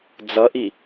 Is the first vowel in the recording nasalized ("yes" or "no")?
no